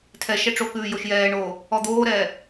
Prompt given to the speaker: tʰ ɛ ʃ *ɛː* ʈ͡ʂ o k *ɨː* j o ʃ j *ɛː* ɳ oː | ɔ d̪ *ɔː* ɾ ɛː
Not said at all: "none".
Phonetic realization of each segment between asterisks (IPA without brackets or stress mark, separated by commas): ɛ, ʉː, ɛː, oː